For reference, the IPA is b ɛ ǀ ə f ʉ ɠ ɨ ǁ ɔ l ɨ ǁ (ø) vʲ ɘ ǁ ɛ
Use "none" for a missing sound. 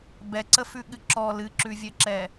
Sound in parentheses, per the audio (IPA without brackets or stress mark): ʉ